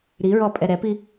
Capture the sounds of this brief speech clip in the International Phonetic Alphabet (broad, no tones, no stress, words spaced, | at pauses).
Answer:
ɾiɹɔpʼɛ ɾɛpi